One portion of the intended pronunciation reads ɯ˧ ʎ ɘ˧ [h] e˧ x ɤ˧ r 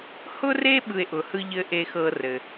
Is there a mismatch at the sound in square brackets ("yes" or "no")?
yes